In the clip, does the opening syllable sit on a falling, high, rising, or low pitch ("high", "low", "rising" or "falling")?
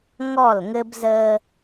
falling